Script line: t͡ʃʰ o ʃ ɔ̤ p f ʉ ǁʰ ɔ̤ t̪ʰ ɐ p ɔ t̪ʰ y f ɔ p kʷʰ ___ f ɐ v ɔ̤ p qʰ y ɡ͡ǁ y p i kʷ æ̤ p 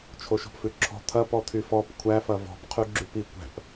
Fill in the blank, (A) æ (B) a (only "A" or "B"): A